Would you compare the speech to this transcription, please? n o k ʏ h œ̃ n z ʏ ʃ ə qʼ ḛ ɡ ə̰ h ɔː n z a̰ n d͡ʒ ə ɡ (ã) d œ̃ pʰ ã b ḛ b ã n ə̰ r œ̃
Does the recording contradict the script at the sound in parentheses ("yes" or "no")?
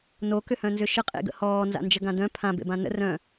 no